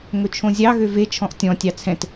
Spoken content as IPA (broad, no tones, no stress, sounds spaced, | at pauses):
ŋ ɵ t͡ʃʰ õ zʲ ɑ ɣ ø v e t͡ʃʰ ɔ̃ ʔ tʲ ɔ̃ tʲ ɑ t͡sʰ ɛ̃ t